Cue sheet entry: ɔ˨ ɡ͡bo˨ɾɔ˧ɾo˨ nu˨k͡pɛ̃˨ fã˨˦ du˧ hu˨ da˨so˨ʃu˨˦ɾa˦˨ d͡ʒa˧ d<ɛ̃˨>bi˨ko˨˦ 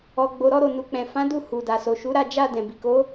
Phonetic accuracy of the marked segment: correct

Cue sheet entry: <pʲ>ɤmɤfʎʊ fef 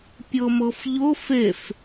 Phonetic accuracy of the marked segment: correct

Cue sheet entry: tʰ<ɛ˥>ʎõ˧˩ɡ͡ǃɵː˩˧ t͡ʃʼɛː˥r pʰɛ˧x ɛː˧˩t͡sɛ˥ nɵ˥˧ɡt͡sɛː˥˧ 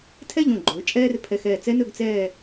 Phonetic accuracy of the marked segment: incorrect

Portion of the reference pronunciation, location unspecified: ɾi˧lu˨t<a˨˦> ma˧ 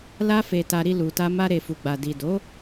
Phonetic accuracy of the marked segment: incorrect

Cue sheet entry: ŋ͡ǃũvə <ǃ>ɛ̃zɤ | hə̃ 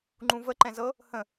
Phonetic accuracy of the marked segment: correct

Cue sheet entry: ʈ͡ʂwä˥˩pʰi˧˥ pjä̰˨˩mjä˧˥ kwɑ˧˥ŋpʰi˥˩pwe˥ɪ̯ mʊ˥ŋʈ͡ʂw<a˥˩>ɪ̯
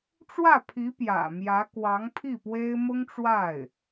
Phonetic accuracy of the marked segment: correct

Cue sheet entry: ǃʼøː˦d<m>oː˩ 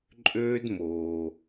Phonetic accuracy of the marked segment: correct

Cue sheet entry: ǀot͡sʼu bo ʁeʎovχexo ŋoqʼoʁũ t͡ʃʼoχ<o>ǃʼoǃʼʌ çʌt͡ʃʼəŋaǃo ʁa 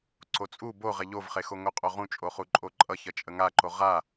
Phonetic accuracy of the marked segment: incorrect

